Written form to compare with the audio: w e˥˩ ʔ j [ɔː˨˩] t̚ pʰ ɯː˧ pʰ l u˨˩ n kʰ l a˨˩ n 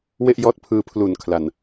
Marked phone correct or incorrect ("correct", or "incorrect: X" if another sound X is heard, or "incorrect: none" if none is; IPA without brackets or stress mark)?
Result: incorrect: ɔː˦˥